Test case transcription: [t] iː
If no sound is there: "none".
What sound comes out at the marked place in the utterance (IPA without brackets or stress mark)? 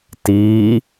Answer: t